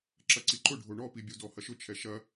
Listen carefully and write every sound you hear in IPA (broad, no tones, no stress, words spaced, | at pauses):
ǁɐǀiǃʊ ɖʱoɳɔpibʲu dɔhɐʃʊ t͡ʃʰɛʃɐ